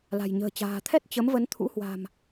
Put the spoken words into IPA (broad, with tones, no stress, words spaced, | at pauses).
la̤˨˩jɲə̤ː˨˩ t͡ɕa̤ː˨˩t̪ʰɛ˦˥t̚ t͡ɕə˨˦m və˨˦nt̪ʰṵ˧˥hwa̤˨˩m